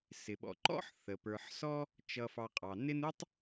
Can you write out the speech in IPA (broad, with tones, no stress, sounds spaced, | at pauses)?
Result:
s ɪ˩ ɓ ɔ̰˨ ǃ ɔ̰˥ ħ θ ə˩ p ə˞˨ ħ s ɔ˥ | t͡ʃ ʌ˨ f ɑ˨ qʼ ɑ˩ n ɪ˦ n u˥ tˤ